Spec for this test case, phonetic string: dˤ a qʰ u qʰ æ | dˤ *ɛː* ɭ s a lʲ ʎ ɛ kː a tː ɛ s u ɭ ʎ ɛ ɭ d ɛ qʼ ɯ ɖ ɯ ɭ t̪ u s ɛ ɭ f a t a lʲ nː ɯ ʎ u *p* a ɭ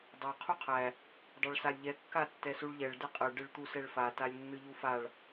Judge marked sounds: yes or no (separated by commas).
no, no